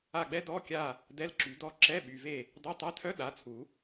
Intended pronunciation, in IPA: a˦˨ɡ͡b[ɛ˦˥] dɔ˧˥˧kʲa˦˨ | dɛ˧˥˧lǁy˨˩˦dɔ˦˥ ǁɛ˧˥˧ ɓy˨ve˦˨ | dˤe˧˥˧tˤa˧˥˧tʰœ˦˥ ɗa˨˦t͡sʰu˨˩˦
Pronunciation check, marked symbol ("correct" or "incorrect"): correct